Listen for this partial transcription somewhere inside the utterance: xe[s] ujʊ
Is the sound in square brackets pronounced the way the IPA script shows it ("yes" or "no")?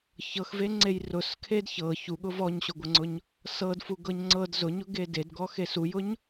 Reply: yes